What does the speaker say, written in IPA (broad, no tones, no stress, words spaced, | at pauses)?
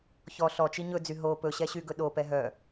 çɔ ɬɔt͡ʃi ɲɵd͡zy ɦo pɵɕɛɕyɡɵ ɗopɛ ɦœ